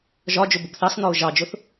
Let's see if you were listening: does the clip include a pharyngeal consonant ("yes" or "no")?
no